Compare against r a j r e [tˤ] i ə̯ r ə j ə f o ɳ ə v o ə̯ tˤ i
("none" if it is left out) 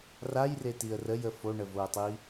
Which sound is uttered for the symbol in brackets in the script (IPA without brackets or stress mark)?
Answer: t